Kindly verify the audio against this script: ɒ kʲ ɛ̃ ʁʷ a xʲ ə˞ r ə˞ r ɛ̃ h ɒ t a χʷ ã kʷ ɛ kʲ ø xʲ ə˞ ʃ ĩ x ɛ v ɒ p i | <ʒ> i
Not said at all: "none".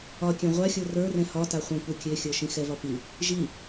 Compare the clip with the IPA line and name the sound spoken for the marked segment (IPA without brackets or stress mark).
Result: ʒ